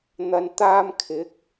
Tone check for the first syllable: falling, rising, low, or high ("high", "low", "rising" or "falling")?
low